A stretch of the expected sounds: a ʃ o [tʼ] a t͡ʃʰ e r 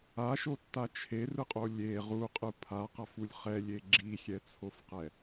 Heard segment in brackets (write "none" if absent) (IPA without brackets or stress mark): tː